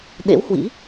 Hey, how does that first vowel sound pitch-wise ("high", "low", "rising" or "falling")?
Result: rising